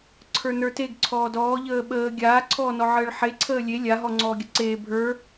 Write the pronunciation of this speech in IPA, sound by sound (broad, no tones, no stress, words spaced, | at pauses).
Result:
ǀʰə˞nə˞teɡǀʰɔː dɔːʎəː ɓəː ɡʲaːǀʰɔː nɔʕəːɭħeǀʰəː lʲe lʲa ɦɔŋ͡ǀɔːɡʲəǀeː bʱə˞